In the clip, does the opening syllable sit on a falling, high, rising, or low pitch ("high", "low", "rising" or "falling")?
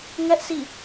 high